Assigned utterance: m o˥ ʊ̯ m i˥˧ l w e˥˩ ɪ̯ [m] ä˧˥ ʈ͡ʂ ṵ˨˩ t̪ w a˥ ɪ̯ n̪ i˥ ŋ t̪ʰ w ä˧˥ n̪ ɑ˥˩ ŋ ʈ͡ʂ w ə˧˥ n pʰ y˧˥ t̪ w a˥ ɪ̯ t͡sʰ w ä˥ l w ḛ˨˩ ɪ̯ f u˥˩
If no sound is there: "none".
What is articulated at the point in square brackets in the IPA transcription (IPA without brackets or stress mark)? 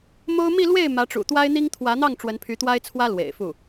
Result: m